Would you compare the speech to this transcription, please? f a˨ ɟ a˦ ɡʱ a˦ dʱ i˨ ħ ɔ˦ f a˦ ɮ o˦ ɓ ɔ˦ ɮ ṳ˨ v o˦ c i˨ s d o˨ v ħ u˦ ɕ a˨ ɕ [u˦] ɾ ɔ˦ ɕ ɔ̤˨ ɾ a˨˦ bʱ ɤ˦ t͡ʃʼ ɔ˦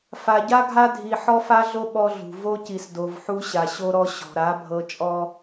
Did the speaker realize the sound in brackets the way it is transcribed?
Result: no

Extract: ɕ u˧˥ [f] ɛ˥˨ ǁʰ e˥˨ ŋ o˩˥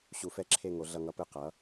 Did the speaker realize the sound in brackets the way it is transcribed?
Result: yes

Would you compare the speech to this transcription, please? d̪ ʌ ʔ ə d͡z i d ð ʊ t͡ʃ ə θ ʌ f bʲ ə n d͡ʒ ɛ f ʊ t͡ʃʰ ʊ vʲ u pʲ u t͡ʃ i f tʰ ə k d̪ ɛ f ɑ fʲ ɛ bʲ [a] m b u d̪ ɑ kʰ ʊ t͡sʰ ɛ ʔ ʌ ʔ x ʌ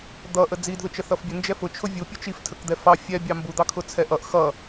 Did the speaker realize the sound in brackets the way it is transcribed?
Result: no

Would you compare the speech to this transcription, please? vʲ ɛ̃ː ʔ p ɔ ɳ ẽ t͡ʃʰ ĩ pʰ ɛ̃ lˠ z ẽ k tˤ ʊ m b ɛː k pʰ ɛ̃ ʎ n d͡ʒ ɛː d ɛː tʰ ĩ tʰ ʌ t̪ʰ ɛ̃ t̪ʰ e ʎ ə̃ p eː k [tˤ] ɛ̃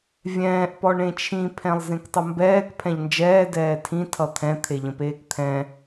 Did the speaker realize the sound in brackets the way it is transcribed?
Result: no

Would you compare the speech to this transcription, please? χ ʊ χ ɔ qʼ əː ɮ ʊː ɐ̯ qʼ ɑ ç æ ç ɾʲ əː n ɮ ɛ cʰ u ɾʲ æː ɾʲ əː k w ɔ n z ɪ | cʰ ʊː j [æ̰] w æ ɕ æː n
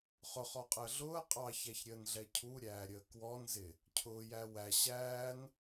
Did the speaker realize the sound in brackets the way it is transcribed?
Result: no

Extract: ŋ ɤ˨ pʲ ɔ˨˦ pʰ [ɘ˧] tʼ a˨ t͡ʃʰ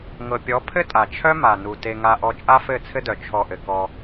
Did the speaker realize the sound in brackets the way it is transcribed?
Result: no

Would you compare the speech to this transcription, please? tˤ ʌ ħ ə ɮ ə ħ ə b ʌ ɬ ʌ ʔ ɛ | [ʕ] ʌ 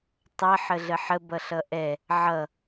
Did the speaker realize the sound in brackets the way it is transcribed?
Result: yes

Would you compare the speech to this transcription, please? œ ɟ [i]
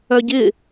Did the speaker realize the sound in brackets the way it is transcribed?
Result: no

